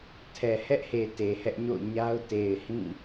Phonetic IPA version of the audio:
tʰ ɛ˨ h ɛ˦ ʔ h e˨ t e˨ h ɛ˦ ʔ ɲ o̰˦˨ ʊ̯ ɲ a˦ ʊ̯ t e˨ ɪ̯ h ĩ˦˨

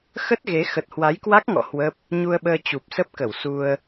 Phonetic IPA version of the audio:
x ə˦˥ t̚ ɣ e˨˦ x ə˨˩ t̚ h w a˨˦ j k w a˦˥ k̚ ŋ ɔ̰˧˨ h w ə˦˥ p̚ | ɲ u˧ ə̯ ɓ əː˧ t͡ɕ u˨˩ p̚ s ə˦˥ p̚ k ə˧˩ w s u˧ ə̯

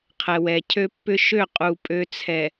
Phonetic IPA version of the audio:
qʰ ɛ˨ w ɛ˨ cʰ ø˦ pː ʏ˦ ʃ ø˦˨ qʼ u˨ pʼ ø˦ t͡sʰ ɛ˨

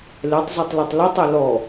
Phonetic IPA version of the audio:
l ɛ tˤ z œ tˤ l œ tˤ l œ tˤ e l ɔ

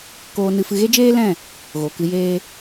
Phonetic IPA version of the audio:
k oː˧ n ɨ˧ f ɨ˧ ɣ e˦ d͡ʒ eː˦ l ɛ̃˦˨ | ɣ o˨ k ɨ˧ j eː˦

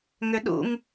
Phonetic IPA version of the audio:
ŋ ʏ ɗ ṵ ŋ

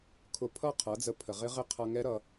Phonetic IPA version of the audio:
kʰ ʊ˧ pʰ ʌ˦˨ qʰ ʌ˨˦ d͡z ə˧ pʰ ə˨ ʁ ɪ˦ ʁ ɪ˦ qʰ ʌ˧ ŋ ɛ˦ ɾ ʌ˧

